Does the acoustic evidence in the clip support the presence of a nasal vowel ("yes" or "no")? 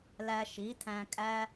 yes